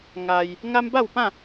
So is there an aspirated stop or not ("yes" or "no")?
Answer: no